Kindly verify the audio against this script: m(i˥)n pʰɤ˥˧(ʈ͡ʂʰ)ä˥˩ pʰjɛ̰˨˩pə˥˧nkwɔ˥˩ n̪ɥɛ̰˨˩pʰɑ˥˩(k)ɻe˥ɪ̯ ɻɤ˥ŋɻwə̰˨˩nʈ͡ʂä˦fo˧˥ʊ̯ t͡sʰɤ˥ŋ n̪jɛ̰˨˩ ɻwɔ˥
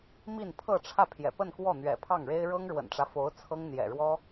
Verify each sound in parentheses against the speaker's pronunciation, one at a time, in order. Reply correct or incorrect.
incorrect, correct, incorrect

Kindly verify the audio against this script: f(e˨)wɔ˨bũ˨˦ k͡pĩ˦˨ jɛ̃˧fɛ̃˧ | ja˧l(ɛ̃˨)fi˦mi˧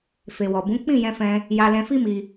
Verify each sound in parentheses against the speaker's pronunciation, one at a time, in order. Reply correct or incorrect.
correct, incorrect

